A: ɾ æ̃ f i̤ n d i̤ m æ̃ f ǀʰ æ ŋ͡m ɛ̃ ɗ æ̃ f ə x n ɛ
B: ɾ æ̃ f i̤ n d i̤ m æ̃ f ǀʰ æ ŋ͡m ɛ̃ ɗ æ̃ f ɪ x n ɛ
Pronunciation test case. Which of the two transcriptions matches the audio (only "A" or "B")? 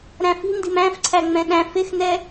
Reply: B